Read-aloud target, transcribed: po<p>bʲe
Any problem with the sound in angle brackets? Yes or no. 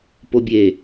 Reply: yes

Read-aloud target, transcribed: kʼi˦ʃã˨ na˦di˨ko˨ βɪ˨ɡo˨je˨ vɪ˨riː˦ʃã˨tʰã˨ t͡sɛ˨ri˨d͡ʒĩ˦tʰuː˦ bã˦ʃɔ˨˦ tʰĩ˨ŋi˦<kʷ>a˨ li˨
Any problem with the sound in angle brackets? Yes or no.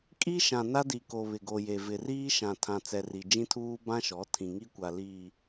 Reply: no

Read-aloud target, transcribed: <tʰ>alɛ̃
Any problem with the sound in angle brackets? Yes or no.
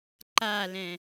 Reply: yes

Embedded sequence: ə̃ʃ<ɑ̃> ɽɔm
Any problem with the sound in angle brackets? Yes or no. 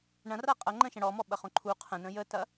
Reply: yes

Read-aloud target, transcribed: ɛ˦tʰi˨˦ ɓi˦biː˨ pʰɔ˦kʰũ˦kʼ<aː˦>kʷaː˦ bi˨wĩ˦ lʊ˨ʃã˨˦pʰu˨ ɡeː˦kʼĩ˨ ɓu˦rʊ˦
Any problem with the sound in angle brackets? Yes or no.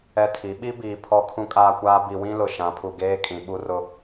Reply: no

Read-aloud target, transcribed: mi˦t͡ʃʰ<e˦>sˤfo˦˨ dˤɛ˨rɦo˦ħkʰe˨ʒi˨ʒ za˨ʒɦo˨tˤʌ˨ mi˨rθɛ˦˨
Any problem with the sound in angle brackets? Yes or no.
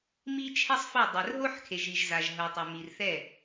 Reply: yes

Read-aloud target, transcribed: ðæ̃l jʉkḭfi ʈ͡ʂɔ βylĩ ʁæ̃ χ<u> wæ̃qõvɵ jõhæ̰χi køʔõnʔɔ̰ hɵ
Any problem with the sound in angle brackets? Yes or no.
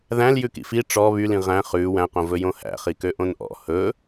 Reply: yes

